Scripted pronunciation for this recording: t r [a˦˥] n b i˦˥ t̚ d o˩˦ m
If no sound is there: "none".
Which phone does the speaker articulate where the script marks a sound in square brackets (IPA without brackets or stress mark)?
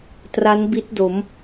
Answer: a˦˥